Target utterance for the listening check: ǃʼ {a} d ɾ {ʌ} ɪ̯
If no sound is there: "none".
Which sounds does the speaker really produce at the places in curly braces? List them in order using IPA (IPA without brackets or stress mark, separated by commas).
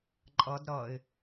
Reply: ʌ, ʌ